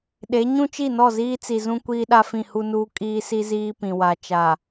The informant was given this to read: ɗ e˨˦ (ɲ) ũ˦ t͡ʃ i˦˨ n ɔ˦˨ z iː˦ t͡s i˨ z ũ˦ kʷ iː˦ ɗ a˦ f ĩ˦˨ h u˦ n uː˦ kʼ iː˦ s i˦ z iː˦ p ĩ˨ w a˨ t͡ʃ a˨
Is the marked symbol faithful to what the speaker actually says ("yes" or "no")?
yes